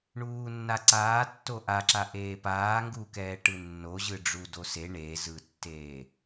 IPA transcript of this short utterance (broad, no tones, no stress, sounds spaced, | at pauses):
ɳ uː nː a ǀ aː tː o ʔ a ǁ a ʔ eː p aː ŋ ɡ uː k ɛː ʈ ɯ nː o ʑ ɯ ɖ͡ʐ u d o s e ɳ e z ɯ tː eː